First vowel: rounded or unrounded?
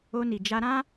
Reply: rounded